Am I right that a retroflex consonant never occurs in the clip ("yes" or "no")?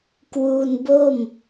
yes